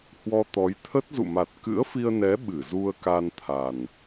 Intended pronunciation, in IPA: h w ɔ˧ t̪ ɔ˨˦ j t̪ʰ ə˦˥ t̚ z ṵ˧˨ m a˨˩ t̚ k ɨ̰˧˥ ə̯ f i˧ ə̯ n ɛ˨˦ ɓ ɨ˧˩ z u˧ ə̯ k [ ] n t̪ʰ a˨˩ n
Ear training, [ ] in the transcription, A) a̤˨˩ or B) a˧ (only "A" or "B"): B